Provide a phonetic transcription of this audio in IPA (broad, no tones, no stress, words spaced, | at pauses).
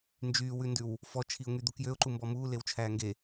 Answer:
nd͡ʒyːwʉndʉw | fɔt͡ʃʰiʊ̯ŋyd̪u kjøʊ̯ǃumbɔ muːlewt͡ʃʰæː ŋɡe